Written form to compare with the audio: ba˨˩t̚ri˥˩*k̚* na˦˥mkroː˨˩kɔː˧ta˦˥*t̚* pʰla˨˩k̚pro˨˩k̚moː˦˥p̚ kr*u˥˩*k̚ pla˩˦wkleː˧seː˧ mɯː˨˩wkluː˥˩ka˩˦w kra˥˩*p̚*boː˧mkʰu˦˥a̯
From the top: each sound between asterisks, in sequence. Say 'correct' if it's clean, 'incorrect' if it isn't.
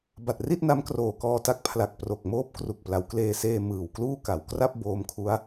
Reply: incorrect, incorrect, incorrect, correct

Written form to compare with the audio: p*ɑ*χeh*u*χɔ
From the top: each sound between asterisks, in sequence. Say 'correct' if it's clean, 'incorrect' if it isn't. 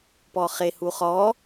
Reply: incorrect, correct

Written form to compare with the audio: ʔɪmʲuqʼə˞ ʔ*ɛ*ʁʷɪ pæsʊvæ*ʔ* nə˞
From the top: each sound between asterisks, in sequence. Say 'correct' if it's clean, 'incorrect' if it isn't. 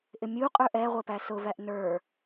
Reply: correct, correct

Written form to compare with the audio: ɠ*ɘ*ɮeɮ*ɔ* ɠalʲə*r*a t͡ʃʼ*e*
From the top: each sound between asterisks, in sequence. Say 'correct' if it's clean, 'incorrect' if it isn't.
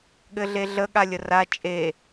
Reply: correct, incorrect, correct, correct

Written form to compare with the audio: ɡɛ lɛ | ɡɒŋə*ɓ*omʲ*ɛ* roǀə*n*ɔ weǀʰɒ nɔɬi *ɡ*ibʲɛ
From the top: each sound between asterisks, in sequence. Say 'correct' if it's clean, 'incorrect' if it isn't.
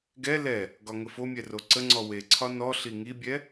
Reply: incorrect, correct, incorrect, incorrect

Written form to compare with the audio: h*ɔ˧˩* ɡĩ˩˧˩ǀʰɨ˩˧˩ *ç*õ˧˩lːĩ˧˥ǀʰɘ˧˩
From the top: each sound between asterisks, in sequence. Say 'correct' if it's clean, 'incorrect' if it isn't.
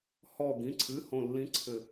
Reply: correct, incorrect

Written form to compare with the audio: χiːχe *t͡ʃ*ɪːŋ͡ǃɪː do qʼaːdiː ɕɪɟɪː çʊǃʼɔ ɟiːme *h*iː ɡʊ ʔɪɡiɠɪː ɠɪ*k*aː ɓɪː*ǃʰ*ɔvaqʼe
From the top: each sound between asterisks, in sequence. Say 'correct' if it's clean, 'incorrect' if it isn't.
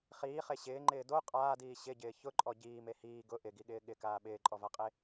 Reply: incorrect, correct, correct, incorrect

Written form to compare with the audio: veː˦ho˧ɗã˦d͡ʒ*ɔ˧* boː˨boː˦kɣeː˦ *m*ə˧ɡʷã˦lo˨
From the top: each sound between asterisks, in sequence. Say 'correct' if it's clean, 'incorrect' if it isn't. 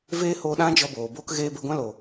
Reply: correct, incorrect

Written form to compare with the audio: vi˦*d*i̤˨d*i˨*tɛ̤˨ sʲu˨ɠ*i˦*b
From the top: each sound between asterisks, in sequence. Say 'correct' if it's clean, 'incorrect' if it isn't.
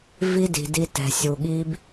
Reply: correct, incorrect, correct

